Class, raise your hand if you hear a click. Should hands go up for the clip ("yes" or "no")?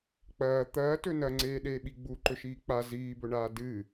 yes